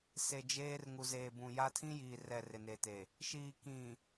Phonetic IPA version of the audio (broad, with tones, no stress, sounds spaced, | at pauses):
s e˨ d͡ʒ eː˦ r ŋ u˨ z eː˨ b ũ˨ j a˦ tʰ ĩ˦ j iː˨ r ɛ˨ r ɪ˨ n e˨ t e˨ | ʃ iː˨ k ĩ˨